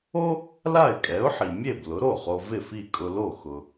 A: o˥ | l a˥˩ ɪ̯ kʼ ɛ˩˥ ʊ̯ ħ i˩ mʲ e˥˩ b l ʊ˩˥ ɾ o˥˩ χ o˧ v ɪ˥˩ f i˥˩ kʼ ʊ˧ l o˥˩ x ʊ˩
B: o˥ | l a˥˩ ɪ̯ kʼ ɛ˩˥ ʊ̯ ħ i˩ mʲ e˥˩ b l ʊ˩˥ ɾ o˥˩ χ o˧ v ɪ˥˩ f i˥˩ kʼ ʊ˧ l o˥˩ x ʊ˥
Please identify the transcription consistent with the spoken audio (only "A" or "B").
A